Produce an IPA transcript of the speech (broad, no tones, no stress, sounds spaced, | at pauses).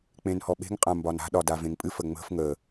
k͡p ẽ n h ɔ ɓ e̤ ŋ qʼ ã m b ɒ n a̤ ɗ ɒ d a v ẽ ŋ pʼ ɨ f ə ŋ͡m ə̤ f ŋ ə